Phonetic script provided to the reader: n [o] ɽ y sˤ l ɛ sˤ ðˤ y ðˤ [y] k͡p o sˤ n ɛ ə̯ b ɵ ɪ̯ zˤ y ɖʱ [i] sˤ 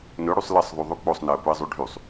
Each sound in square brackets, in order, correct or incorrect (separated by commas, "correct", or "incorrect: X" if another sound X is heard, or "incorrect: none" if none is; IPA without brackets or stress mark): incorrect: ɵ, correct, incorrect: y